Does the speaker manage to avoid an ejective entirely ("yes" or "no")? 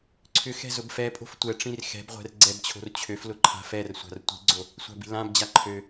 no